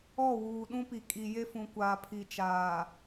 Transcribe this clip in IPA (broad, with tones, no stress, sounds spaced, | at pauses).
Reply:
ɔ˦˨ w uː˨ ɗ ũ˦ p i˨ kʼ i˨ j e˦ f ũ˨ kʷ aː˨ pʰ i˨ t͡ʃ aː˨